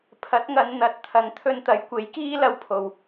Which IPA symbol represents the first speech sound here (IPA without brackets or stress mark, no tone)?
pʰ